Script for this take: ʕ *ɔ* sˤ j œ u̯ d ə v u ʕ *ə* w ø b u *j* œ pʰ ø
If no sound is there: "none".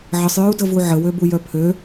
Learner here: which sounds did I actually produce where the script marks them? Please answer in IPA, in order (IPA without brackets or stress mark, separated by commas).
ə, ə, j